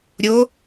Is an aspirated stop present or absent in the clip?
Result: absent